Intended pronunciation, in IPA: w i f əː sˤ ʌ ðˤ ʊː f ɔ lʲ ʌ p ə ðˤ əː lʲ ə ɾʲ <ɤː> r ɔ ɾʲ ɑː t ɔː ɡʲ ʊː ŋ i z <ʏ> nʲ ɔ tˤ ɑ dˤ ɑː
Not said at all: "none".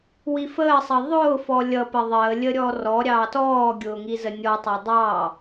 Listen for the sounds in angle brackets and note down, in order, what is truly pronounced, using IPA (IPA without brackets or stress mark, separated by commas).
ɔː, ə